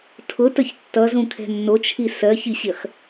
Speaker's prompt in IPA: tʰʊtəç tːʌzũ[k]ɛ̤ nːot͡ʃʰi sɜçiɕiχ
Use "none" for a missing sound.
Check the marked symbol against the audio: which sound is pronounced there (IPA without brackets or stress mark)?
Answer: kʰ